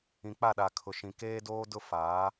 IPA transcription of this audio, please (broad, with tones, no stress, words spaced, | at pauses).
ĩ˨k͡pa˦˨ɗa˨kʰʊ˨ ʃĩ˨keː˦doː˦ dʊ˦faː˨˦